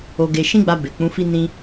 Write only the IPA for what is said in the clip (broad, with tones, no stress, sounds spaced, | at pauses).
o˧ ɡ e˧ ʃ ĩ˦ ɡ͡b a˧ b e˨ k͡p ũ˨˦ f i˦ n ĩ˧